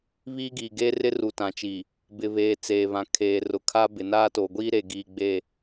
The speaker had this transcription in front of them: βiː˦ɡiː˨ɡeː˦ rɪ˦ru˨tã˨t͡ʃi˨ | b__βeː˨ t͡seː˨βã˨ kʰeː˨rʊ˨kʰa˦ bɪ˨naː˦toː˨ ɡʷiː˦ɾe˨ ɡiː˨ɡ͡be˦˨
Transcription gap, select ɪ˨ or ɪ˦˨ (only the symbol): ɪ˨